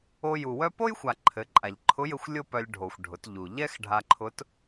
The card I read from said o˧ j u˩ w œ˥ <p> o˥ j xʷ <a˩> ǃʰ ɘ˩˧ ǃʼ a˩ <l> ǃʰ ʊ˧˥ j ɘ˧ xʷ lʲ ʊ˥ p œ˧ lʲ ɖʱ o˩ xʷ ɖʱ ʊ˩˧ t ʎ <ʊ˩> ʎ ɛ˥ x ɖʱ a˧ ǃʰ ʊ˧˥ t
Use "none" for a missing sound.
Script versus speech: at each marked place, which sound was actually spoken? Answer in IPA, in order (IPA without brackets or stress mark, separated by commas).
p, a˩, ʎ, u˩